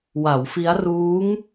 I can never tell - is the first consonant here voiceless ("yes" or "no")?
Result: no